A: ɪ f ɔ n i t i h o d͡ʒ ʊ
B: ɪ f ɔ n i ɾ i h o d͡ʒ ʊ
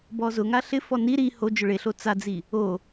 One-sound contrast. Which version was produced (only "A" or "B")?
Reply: B